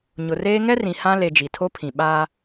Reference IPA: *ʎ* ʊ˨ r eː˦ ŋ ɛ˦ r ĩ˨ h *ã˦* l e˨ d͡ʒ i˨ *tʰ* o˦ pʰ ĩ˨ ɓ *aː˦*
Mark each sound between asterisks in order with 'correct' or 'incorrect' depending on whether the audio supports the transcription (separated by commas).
incorrect, correct, correct, correct